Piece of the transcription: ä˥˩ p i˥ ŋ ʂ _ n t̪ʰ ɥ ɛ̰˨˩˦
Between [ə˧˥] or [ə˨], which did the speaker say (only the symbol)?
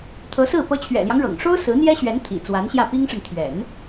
ə˨